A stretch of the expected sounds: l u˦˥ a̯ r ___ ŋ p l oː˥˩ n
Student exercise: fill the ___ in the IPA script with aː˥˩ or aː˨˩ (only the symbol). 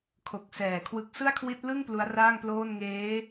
aː˥˩